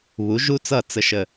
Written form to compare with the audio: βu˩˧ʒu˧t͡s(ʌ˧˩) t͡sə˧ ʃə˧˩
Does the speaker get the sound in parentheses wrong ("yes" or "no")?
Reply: no